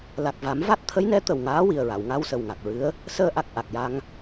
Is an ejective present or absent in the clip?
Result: absent